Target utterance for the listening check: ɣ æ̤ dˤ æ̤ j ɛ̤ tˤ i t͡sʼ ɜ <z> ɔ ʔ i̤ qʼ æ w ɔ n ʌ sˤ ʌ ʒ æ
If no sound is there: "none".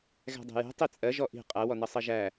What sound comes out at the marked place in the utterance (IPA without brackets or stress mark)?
ʒ